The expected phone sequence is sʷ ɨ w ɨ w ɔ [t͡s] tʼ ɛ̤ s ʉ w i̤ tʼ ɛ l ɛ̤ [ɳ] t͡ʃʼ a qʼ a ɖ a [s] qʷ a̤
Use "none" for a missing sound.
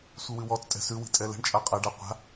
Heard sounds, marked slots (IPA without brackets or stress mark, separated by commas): t͡s, ɳ, none